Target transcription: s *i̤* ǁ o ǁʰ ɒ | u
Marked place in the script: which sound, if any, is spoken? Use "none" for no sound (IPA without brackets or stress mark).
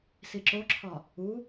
i